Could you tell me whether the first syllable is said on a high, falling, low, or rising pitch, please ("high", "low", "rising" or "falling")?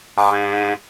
high